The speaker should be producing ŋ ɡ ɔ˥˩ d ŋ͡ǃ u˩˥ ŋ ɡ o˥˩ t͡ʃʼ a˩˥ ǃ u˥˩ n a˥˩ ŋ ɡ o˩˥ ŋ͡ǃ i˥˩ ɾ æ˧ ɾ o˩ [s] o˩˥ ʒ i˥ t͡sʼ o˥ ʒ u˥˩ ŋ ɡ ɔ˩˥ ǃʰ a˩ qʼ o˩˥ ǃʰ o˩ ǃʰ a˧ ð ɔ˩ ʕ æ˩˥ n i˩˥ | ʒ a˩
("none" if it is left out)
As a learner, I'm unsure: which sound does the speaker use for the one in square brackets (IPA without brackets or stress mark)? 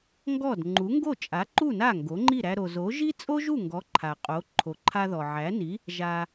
z